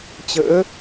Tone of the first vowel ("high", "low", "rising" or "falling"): rising